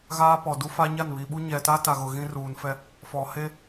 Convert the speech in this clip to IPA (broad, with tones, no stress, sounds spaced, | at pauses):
ɣ aː˦ p ɔ˨ d u˦ f a˦ ɲ a˦˨ n β i˨ ɓ u˦ ɲ ɛ˨ t a˦ t a˨ ɣ ʊ˨ ɣ ĩ˦ r uː˨ n f ɛ˦ | f ɔ˨ h e˦